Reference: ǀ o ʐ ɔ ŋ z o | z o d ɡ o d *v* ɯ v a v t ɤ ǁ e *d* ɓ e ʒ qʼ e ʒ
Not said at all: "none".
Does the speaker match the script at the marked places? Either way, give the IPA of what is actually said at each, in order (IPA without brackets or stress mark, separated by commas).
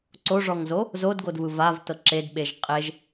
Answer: v, d